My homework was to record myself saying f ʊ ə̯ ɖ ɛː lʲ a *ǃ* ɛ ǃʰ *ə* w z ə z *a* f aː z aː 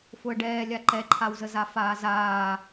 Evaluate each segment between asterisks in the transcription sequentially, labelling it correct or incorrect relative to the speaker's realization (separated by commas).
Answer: correct, incorrect, correct